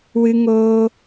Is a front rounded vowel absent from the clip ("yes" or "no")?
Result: yes